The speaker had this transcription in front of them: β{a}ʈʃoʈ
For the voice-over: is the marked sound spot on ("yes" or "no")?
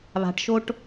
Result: no